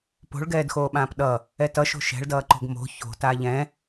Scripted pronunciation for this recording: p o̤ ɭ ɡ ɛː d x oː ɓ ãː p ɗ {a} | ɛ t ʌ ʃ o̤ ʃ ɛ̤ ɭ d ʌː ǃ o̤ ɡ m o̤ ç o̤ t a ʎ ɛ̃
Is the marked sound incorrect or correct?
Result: incorrect: ʌ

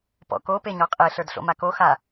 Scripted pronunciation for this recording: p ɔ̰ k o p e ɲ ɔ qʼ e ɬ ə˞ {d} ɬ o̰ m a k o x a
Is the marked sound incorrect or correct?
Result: correct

